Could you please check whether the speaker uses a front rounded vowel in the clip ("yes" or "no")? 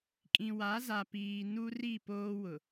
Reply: no